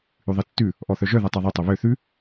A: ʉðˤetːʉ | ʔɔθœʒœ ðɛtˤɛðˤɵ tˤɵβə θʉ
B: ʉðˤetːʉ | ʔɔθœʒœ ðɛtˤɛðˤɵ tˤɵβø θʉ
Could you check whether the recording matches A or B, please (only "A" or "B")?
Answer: B